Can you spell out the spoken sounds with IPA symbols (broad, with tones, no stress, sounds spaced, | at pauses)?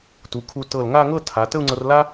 t u˩˧ kʰ u˧ t ɤ˧˩ l ŋ a˥˧ ŋ ɤ˥˧ tʰ a˩˧ t ə˥˧ u̯ ŋ͡ǀ ɤ˧ r l a˥